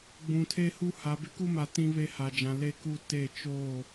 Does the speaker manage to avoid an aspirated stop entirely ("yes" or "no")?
no